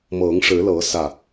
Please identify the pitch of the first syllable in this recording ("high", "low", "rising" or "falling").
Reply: rising